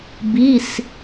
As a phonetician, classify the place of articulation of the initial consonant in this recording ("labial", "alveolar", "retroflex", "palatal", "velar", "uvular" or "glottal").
labial